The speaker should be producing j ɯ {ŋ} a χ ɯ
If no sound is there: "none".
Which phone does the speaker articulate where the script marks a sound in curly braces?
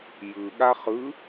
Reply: ɠ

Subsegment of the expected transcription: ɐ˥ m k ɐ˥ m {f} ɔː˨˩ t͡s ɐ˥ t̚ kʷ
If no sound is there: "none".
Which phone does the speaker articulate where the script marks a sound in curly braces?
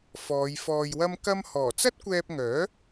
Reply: h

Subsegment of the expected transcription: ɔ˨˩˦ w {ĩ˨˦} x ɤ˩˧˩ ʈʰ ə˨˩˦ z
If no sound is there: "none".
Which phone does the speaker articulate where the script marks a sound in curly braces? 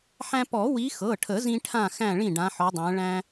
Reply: i˨˦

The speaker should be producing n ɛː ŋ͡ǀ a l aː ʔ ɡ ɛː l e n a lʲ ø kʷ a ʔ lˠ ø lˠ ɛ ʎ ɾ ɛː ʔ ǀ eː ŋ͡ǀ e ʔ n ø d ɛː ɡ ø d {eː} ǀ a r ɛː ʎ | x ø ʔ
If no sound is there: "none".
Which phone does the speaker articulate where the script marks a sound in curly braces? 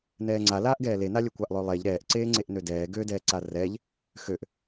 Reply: ɛː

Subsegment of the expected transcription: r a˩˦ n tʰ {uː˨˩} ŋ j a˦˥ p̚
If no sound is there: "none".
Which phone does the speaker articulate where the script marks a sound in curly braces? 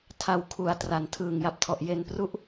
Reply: ɯː˨˩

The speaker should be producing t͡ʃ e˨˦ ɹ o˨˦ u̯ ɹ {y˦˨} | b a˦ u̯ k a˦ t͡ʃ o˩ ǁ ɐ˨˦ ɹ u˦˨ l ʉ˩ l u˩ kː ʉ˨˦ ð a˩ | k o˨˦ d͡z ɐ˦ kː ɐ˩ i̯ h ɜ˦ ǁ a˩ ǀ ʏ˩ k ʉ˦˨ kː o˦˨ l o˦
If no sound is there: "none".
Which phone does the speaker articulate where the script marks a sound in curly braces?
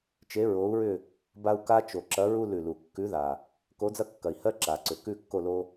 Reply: ʏ˦˨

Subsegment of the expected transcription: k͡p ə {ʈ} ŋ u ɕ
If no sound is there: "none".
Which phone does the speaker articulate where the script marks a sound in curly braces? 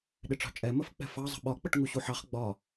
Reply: ʈ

